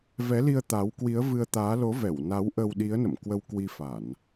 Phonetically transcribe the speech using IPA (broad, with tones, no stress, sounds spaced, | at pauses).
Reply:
v ɛ˨˦ l i˧ ə̯ t̪ a˨˦ w k w i˨˦ ə̯ v ɨ˧ ə̯ t̪ aː˨˦ l o˨˦ v ɛ˧˩ w n a˨˦ w ʔ ə˧ w ɗ i˨˦ ə̯ n ə̰˧˨ m k w ə˧ w k w i˧ f a˧˩˨ n